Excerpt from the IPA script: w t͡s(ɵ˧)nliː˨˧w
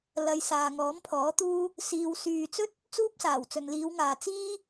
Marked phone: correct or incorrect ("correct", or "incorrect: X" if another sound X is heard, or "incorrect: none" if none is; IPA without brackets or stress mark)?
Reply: incorrect: ɵ˨